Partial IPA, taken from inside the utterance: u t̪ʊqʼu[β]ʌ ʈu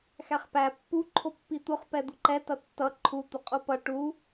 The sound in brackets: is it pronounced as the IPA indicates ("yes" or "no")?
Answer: no